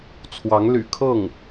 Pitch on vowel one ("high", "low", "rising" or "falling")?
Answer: rising